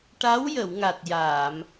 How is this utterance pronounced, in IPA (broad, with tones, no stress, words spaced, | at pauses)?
ʈa˧˥w jə˨˩˨wŋa˨˩t̚ jaː˨˩˨m